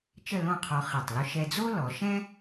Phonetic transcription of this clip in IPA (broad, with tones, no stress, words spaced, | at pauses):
t͡ʃə˥˧lõ˥˧qʰɔ˧ χi˧˩tˤlʊ˥ ʃɛ˧d͡zo˥lɔ˩˧ʃɛ̃˥